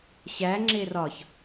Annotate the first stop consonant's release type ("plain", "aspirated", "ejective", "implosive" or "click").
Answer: click